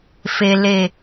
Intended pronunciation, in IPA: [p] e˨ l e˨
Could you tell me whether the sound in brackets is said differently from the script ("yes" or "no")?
yes